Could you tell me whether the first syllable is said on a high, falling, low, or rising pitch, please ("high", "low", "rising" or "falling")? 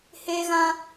high